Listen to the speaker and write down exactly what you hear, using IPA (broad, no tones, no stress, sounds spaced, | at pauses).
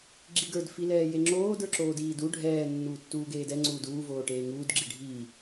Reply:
ɡ͡ǁ i ɡ ə˞ d f i l ɛː j e ŋ͡ǁ oː d ə˞ ǁ oː d iː d u ɖʱ ɛː nː uː tː uː ɡ eː d ɛ ŋ͡ǀ uː d uː v oː ʈ eː ŋ uː d ɡ͡ǁ i ɖʱ i